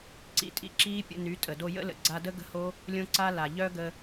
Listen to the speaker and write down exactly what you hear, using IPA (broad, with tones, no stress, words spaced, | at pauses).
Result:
ǀḭ˧tʼḭ˧ǁiː˦ pʲə̰˧ny˨˦tʼə˨ do˧jə̰˦lə̰˨ ɡ͡ǀa˧də˦ ɡə̤˦ho˦ | lʲõ˦ǀa˦la˨ ʎœ˦ɡə˧